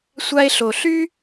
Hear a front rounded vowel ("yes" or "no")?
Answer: yes